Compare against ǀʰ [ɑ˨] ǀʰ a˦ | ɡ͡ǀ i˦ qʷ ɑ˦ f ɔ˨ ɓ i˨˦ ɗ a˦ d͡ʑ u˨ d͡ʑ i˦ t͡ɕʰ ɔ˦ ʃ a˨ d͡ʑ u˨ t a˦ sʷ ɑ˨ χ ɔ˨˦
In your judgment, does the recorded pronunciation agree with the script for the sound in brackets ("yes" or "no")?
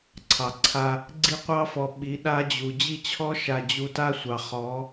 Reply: yes